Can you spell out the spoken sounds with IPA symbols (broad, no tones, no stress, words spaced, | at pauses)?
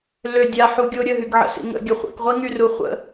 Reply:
lø dʲaħuɡʲo ɾʲəɦyɡʕə̰sḭ ŋə̰ɡʲə χʷḭkʁʷiŋyru χʷə̰